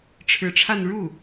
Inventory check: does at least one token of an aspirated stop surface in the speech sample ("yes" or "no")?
yes